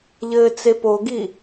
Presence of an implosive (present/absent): absent